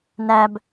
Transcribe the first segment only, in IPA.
n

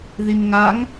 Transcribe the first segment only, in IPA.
ð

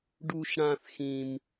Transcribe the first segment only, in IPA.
ɖ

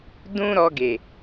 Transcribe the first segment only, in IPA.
d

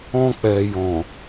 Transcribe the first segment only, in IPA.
ɔ̃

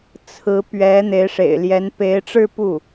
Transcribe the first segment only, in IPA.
t͡sʰ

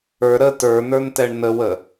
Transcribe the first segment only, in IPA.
ə˞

